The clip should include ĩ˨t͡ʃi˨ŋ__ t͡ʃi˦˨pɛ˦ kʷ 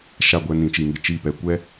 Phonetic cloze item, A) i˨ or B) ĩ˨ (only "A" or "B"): A